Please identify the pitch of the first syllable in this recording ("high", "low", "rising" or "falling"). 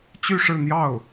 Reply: falling